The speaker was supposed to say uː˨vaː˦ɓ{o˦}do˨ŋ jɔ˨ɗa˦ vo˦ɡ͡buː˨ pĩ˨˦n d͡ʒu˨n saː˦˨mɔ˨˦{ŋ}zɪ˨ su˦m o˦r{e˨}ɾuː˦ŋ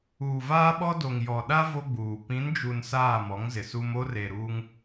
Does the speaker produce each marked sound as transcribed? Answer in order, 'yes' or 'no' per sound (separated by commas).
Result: no, yes, yes